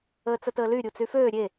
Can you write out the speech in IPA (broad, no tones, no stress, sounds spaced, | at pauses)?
əː t͡s ə t əː l y ɾʲ u t͡s y f øː ɾʲ e